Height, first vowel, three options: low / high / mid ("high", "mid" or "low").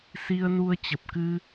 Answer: high